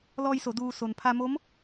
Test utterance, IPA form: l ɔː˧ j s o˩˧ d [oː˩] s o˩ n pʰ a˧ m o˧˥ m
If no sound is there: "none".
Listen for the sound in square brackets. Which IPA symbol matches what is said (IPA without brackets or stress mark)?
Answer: uː˩